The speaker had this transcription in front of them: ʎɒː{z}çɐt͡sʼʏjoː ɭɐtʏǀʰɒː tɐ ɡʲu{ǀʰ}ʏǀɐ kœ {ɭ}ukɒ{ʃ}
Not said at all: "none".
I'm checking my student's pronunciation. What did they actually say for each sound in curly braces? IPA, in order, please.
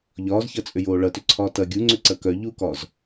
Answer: z, ŋ͡ǀ, ʎ, z

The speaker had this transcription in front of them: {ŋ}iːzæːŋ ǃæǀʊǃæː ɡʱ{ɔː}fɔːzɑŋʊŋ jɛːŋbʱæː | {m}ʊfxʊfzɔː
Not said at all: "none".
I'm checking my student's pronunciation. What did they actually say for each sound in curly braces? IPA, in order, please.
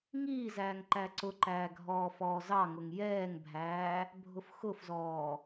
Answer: ŋ, ɔː, bʱ

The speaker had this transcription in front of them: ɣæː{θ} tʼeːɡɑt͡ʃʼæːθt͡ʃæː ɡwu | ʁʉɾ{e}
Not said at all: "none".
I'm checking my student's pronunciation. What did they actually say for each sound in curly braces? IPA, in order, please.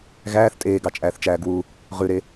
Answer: θ, e

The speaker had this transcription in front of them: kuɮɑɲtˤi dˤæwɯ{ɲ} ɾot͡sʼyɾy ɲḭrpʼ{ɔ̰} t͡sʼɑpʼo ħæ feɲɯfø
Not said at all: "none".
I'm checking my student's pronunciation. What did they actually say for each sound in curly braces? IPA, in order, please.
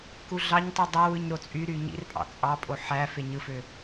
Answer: ɲ, ɑ̰

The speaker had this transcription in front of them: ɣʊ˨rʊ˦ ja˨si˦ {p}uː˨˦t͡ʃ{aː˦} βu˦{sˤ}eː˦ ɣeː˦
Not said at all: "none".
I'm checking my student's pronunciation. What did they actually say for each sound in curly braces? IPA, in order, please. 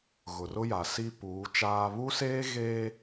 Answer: p, aː˦, s

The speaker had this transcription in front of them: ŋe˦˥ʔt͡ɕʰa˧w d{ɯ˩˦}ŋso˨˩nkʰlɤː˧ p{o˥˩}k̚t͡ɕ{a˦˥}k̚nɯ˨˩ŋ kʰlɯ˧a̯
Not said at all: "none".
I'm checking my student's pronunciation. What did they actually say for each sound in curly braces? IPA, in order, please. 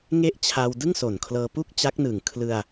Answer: ɯ˥˩, u˥˩, a˦˥

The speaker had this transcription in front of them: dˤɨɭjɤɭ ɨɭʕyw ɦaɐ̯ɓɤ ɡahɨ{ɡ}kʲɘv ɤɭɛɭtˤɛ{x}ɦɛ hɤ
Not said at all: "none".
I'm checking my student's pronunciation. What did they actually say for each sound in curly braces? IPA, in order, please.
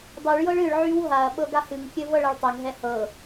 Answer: ŋ, ŋ

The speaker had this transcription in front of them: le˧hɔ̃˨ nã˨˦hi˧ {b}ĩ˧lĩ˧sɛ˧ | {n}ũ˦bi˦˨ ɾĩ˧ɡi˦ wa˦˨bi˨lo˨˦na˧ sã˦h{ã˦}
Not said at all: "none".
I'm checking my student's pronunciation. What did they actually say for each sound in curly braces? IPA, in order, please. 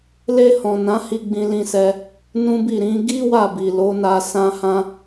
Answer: ɡ͡b, n, ã˦

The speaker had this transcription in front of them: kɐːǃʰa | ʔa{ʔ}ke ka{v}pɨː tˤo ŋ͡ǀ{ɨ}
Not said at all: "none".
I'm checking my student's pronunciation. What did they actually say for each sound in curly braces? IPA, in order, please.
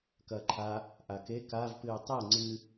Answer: none, v, ɨ

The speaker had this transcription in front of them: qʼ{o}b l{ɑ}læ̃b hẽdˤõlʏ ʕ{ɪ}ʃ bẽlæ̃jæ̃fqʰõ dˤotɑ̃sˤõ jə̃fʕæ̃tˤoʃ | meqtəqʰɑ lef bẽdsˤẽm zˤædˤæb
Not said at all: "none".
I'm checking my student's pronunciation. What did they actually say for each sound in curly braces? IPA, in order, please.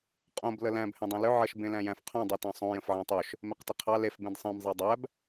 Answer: õ, ə, ə

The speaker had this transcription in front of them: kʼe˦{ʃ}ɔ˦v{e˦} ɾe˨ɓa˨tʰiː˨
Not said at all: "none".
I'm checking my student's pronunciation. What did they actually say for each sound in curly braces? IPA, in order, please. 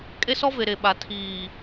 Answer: s, e˨

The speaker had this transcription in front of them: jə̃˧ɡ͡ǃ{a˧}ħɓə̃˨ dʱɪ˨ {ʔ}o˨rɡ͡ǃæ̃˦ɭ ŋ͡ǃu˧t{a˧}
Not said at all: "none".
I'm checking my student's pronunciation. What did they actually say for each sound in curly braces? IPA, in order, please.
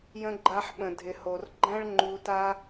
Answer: a˧, h, a˦

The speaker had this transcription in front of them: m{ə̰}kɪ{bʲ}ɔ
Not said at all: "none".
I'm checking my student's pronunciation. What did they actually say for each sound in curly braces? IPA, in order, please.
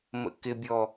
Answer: ə̰, bʲ

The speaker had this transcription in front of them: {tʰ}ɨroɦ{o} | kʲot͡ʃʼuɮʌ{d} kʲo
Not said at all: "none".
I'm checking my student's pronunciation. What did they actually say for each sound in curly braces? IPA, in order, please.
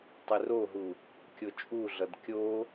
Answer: tˤ, u, d

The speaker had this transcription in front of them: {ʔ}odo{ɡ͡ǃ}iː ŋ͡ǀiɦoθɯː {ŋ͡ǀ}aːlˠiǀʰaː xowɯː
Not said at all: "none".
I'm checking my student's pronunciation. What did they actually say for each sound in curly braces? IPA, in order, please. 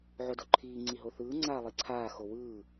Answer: ʕ, ǃʰ, ŋ͡ǀ

